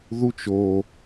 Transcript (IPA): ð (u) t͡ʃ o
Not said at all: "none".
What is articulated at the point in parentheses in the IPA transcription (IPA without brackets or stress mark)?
u